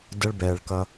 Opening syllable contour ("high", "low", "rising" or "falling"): high